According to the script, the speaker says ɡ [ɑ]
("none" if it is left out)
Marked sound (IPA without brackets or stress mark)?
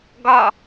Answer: ɒ